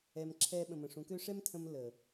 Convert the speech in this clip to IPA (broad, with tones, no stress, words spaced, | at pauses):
ɛ˨m ǁʰɛː˧ɓə̃˨mə̃˨ ʂũ˨˦kø˦ ʂɛ˦mtʰə̃˧m ləː˨